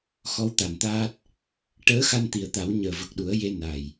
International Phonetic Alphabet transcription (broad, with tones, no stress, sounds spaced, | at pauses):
x ɔ˧˥ w t̪ a˨˩ n t̪ aː˦˥ t̚ | ʈ əː˧˥ x a˧ n t̪ i˨˩ ə̯ t̪ a˨˩˦ w ɲ əː˨˩ v ə˨˩ k̚ ɗ u˨˩˦ ə̯ j e˧ n a˨˩ j